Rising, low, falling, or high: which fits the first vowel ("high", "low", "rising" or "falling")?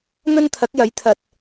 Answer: high